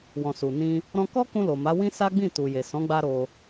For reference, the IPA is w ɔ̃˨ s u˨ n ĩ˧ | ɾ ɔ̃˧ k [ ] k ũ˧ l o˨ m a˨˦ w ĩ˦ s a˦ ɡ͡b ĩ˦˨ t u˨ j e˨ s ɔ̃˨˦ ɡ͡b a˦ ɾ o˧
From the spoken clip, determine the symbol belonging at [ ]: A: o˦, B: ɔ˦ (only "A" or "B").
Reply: B